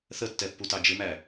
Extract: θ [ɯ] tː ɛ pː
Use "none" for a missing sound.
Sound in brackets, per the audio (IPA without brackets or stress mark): ə